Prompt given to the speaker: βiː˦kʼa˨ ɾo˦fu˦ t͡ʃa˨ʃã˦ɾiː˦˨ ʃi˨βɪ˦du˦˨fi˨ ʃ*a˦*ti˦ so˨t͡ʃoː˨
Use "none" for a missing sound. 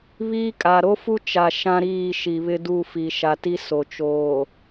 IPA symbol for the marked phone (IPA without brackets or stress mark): a˨